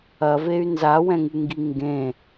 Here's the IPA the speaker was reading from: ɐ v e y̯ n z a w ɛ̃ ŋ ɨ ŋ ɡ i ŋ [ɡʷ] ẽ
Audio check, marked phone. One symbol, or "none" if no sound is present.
ɡ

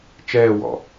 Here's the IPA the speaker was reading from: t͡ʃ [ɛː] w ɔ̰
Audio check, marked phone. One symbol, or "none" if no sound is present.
ɛː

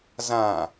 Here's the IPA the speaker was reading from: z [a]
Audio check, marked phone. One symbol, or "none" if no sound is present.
ã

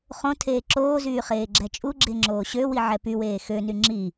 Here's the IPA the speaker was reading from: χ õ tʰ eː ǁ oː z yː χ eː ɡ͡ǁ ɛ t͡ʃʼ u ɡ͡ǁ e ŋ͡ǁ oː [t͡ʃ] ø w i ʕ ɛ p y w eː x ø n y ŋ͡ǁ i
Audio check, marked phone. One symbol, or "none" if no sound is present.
ɕ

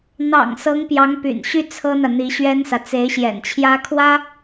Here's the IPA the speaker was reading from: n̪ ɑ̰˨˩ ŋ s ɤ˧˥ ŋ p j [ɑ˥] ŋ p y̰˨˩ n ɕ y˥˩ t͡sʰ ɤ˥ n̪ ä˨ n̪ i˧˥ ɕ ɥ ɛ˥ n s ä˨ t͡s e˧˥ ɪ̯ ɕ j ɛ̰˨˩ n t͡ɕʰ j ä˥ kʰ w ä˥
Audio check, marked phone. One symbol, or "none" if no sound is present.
ɑ˧˥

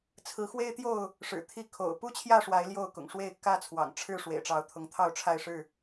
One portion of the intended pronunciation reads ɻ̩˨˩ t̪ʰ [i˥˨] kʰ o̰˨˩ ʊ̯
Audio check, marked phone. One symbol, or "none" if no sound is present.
i˥˨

